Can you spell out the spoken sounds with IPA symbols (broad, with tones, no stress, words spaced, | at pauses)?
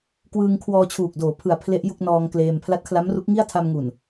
kwɯː˧ŋkʰwɔː˧t͡ɕʰuː˨˩k̚ doː˩˦pʰɯ˩˦a̯ pʰle˦˥ʔju˥˩k̚ nɔː˧ŋkleː˧m pʰla˦˥t̚kʰla˦˥mru˦˥k̚ ŋi˥˩a̯tʰa˧mŋu˨˩n